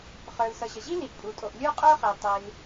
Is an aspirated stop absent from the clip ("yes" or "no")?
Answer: yes